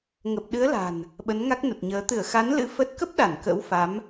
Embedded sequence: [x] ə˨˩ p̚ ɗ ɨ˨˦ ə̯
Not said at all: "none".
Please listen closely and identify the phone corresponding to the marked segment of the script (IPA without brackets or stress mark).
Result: ŋ